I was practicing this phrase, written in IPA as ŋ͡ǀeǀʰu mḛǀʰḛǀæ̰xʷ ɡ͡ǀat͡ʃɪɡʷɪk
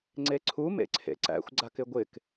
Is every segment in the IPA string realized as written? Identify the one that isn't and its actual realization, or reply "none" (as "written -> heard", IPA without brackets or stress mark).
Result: t͡ʃ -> k